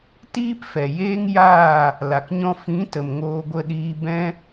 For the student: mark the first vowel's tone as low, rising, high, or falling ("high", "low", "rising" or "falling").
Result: high